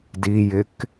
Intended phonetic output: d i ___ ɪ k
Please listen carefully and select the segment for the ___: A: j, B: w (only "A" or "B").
A